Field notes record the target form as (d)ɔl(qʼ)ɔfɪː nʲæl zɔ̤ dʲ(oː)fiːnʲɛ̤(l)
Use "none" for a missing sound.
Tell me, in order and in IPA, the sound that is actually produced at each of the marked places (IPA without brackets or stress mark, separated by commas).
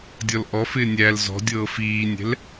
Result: dʲ, ʔ, ɤː, l